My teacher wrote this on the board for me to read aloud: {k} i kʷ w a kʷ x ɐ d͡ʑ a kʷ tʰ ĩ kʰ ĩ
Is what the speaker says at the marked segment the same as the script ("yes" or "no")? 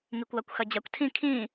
no